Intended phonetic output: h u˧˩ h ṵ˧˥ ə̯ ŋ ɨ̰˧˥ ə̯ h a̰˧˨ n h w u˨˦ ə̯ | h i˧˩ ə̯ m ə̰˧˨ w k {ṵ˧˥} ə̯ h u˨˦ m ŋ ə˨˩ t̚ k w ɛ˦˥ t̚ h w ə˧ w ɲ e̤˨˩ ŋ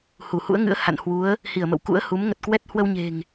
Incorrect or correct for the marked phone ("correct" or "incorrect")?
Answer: correct